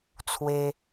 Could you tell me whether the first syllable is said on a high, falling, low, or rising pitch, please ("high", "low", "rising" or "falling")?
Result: high